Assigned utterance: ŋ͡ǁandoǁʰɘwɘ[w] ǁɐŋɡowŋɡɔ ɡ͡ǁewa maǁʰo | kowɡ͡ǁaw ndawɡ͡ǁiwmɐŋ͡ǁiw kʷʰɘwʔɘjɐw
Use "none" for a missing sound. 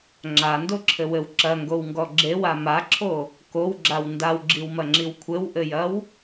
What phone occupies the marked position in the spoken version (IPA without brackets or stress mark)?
w